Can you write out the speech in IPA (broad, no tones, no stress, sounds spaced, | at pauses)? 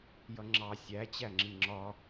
j ʌ ŋ͡ǁ ɑ sʲ æ t͡ɕ æ ŋ͡ǁ i ŋ͡ǁ ɒ